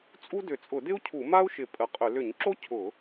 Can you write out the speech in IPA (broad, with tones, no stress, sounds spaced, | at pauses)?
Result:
t͡sʼ u˥ d ʏ˧˩˧ t͡sʼ ʊ˧˩˧ d ɪ˥ u̯ cʰ u˧˩˧ m a˥ u̯ ʃ ɪ˧˩˧ pʼ ə˧˩˧ qʼ ʏ˧˩˧ l ʏ˧˩˧ ɲ ǁ o˥ cʰ ʊ˧˩˧